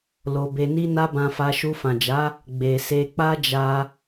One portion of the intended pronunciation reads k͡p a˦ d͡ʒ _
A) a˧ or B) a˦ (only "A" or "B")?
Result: A